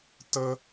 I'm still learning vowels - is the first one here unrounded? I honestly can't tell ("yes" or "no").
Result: yes